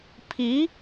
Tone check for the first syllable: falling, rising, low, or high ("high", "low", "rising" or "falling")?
rising